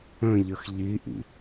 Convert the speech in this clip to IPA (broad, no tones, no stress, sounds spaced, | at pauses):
ə̃ ʎ ə x ʎ i ʔ ḭ